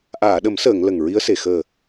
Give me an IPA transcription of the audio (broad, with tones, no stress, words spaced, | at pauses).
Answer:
ʔaː˨˩˨ɗə˨˩˦msəː˨˩˨ŋ lə˨˩ŋɹi˧˥ə̯se˨˩ xəː˨˩